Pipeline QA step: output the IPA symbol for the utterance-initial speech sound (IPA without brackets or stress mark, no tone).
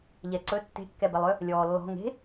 ʎ